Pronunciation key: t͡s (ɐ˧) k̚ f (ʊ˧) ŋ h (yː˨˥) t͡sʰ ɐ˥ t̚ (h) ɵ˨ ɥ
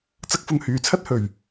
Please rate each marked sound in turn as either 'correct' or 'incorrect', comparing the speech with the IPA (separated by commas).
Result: incorrect, correct, incorrect, correct